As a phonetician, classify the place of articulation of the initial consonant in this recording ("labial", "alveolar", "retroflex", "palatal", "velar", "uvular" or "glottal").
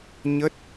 palatal